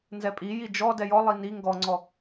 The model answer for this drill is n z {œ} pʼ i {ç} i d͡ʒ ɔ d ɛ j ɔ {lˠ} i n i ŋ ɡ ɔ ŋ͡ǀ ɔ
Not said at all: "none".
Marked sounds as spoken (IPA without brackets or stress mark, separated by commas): ɛ, j, lˠ